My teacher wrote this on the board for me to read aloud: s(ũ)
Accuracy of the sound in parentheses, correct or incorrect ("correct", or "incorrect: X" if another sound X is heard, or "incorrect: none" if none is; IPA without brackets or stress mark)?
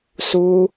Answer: incorrect: u